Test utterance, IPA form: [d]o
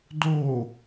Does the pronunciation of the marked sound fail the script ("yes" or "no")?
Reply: no